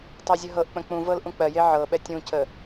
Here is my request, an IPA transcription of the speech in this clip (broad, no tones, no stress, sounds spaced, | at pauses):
tˤ ɜ zʲ ə ɦ ɤ ʔ k͡p ə̃ k͡p ũ v ɤ l ʔ ũ k͡p ɜ j e ʕ ɤ ɓ ɛ tʲ ũ c ə